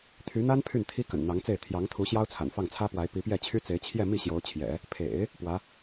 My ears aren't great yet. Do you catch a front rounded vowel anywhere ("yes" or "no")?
yes